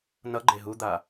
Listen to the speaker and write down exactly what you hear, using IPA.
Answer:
n ʌ ɡ͡ǃ e ɦ u d̪ a

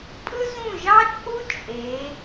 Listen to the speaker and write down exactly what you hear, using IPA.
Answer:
pʼ ɯ˥ z ũ˥˩ ʒ ɑ˥ t͡ʃʼ u˥ t͡ʃʼ e˩˧

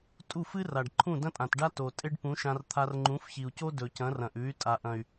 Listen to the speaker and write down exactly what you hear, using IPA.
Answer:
tʼ u˦˨ f ɨ˦ r a˨ ɖ ǃʰ ũ˦˨ d ɐ̃˦ tʼ ã˨ t ɖ a˦ t o˨ tʼ e˦ ɖ p ũ˨˦ ʃ ã˧ r t̪ʰ a˧ r ŋ͡ǃ ũ˨˦ f ç i˨ u̯ c o˦ d ɵ˨ c ɐ̃˨˦ r ɐ̃˨ ʔ ʉ˨˦ y̯ tʼ a˨ ʔ ɐ̃˨ y̯

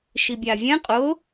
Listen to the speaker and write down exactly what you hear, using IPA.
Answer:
ʃ i bʲ a vʲ ɛ̃ qʼ ʊ

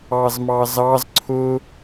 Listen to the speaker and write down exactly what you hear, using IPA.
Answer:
ɑ z m ɑ z ɑ z ǀʰ ʊ

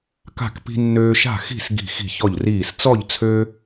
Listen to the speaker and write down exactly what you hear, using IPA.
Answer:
k a̤˥˨ k p i̤˦ nː øː˦ ʃ a̤˥˨ x i̤˥˨ s ɡ i̤˥˨ x i̤˥˨ ç ɔ˥˨ ʎ r iː˥˨ s t͡s ɔ˥˨ ʎ t͡sʰ ø˦

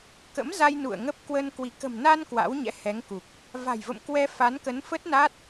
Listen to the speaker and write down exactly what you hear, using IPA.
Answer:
k ə̰˧˥ m z a˧ j n ṵ˧˨ ə̯ ŋ ə˦˥ p̚ k w ə˧ n k w i˧˩ k ə̤˨˩ m n a˧ n k w a̰˧˥ w ɲ ɛ̰˧˥ h ɛ˨˦ ŋ k u˨˩ k̚ | v a̤˨˩ j v ə̰˧˨ m k w ɛ˧ f a˨˦ n k ə˨˦ n f ə˦˥ t̚ n a˦˥ t̚

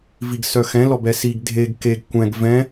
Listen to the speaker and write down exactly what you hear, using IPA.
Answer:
v i ɡ s œ x ɛ̃ l ɔ b ɛ s i ɡ dʱ e ɡ k e ɡ kʷ ɛ̃ ɡ v ɛ̃

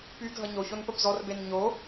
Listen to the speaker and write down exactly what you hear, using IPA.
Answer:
p y ɡʱ ʌ ɲ o ç o n p ə b z ɔ r b e n ɲ o

